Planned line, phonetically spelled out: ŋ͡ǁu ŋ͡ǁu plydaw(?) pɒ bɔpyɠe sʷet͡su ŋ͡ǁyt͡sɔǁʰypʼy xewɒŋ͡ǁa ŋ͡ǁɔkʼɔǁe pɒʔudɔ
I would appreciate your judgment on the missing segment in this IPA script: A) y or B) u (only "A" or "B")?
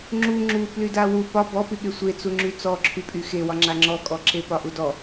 B